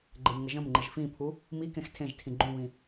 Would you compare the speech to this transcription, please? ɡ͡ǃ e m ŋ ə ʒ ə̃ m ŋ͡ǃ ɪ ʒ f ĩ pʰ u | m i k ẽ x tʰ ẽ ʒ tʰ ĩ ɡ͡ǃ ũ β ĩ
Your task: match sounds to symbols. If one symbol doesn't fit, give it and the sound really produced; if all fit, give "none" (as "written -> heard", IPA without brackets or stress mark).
none